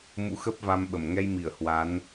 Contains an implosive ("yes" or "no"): yes